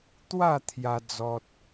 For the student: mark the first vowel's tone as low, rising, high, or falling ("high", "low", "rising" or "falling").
falling